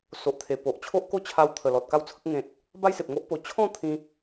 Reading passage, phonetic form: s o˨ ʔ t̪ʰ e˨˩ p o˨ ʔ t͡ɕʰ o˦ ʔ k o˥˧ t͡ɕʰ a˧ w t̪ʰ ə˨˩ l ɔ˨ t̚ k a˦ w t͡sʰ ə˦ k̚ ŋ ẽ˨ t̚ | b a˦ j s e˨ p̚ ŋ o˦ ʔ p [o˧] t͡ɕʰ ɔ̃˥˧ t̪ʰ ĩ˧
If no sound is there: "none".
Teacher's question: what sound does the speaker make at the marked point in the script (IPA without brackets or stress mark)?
o˧